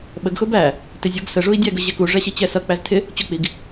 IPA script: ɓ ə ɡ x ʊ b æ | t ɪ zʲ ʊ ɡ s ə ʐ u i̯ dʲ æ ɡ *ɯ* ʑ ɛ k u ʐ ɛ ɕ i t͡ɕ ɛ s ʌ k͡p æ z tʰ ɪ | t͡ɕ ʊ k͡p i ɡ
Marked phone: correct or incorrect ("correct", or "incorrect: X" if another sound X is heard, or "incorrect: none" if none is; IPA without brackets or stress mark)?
incorrect: ə